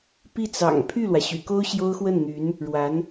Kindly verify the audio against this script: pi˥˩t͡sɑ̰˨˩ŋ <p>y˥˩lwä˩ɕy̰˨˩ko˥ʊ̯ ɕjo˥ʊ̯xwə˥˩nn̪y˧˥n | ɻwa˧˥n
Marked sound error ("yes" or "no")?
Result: yes